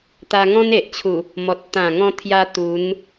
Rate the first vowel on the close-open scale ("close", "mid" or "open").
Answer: open